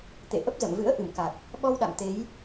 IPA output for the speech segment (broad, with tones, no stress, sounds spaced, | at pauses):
t̪ ḛ˧˨ ʔ ə˦˥ p̚ z ə̰˧˨ m v ɨ̰˧˥ ə̯ ʔ ɨ˧˩ m k a˨˩ k̚ | ɓ ɔ˧ w ɗ a̰˧˨ m t̪ e˨˦ j